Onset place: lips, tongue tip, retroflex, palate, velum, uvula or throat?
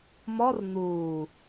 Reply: lips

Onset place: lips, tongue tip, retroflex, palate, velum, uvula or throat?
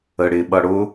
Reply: retroflex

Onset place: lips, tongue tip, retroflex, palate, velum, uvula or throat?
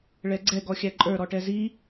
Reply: retroflex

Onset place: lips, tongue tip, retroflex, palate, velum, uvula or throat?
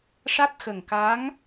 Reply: retroflex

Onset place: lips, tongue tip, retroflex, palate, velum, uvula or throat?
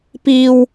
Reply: lips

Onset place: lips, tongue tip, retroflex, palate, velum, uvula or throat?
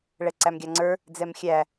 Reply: retroflex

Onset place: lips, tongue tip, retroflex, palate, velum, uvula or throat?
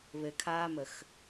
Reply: lips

